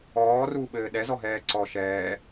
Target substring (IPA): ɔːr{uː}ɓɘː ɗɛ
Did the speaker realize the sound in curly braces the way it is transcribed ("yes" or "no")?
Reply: yes